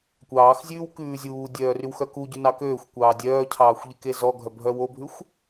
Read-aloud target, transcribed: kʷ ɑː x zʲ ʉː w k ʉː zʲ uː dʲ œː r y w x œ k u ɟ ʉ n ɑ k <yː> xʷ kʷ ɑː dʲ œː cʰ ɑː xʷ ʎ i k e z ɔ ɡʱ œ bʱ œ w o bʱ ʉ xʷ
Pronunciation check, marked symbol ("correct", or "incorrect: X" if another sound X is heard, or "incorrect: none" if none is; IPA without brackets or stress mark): incorrect: øː